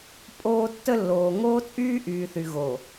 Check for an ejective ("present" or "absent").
present